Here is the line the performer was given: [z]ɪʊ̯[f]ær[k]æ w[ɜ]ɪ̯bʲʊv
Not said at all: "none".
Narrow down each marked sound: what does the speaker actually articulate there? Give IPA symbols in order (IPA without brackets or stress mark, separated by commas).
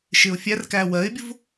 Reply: ʃ, fʲ, k, ɜ